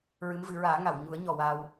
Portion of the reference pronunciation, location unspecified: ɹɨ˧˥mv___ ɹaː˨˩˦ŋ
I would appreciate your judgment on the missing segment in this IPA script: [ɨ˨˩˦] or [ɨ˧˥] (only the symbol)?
ɨ˨˩˦